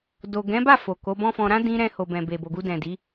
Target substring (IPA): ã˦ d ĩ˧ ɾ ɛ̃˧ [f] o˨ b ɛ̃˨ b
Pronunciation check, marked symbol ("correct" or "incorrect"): incorrect